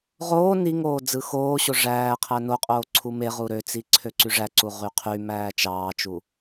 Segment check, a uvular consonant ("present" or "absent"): present